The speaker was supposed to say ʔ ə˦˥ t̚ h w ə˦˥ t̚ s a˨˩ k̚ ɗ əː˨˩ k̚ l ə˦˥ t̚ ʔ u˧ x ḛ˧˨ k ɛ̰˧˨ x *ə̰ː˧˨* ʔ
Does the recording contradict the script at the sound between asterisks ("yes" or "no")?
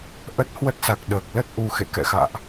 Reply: yes